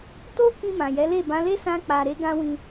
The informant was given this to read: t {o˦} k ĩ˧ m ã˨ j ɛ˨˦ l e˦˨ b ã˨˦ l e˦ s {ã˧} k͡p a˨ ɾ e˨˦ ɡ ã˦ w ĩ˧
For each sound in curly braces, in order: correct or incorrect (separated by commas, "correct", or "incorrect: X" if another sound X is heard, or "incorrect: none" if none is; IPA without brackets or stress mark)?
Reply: correct, correct